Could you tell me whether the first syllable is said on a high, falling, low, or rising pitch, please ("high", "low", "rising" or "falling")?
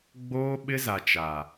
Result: high